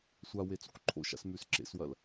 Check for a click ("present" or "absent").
present